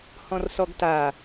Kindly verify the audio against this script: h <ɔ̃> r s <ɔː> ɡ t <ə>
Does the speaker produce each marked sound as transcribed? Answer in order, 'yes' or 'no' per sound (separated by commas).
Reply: yes, no, no